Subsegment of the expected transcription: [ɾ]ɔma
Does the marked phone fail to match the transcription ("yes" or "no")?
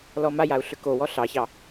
yes